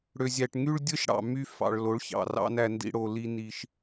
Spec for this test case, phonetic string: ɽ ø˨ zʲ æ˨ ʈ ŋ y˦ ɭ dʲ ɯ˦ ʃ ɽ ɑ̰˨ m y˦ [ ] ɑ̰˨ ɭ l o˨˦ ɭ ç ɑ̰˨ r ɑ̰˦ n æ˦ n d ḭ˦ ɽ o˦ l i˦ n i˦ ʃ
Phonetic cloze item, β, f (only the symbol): f